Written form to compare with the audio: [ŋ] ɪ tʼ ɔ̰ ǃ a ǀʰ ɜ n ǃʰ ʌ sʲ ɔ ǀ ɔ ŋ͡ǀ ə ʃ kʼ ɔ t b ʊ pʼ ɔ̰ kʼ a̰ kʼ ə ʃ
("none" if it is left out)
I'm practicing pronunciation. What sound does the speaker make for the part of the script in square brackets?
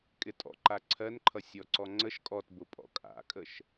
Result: kʼ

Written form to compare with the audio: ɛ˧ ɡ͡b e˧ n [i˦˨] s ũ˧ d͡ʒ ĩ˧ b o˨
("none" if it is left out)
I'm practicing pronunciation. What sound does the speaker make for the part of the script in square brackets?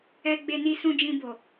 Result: i˧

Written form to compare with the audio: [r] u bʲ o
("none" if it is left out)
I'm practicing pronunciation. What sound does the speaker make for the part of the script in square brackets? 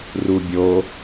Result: r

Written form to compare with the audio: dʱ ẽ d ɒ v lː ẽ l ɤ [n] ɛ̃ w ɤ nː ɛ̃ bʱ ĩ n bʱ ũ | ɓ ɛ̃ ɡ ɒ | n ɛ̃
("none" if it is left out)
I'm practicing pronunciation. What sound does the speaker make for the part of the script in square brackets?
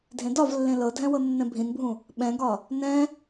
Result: dʱ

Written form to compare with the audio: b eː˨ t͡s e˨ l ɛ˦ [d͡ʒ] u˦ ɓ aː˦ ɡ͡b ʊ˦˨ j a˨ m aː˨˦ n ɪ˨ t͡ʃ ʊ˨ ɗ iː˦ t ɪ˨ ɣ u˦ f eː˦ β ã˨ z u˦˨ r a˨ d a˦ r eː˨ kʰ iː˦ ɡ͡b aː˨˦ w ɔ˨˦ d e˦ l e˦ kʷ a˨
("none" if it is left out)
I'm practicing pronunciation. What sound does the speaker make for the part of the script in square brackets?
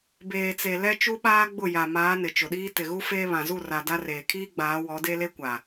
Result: t͡ʃ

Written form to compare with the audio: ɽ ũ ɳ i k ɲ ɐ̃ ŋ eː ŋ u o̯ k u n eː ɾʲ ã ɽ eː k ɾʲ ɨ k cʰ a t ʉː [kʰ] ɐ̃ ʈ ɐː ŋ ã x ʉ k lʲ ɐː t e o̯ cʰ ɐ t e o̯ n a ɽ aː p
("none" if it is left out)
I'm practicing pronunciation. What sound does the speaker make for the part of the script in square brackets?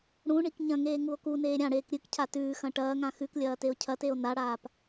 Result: x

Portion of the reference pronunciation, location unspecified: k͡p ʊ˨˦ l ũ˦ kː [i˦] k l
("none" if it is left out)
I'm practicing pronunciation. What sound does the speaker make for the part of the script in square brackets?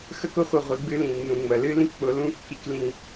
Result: i˦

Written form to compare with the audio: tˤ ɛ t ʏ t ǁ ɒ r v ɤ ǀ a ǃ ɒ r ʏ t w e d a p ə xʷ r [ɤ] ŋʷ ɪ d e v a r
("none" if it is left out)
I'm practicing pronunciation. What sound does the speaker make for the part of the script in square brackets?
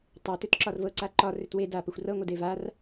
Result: ɤ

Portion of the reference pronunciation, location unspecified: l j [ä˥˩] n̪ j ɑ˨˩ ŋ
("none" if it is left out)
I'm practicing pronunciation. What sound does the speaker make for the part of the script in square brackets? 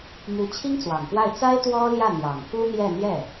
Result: ä˥˩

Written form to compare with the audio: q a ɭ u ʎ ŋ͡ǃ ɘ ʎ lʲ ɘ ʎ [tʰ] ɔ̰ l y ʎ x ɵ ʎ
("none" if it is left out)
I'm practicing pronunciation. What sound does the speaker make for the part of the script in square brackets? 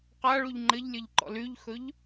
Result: ǃ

